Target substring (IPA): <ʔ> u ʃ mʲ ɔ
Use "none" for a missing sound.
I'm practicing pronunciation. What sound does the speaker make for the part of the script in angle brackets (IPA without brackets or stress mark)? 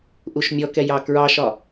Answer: ʔ